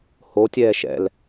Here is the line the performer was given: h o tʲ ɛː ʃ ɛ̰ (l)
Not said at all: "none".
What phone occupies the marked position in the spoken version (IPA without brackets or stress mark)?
l